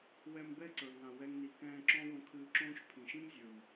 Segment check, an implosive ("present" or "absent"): absent